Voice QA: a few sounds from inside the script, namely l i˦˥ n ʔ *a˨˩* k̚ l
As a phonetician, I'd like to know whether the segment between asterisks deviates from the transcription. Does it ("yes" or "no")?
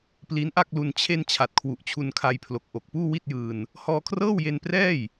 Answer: yes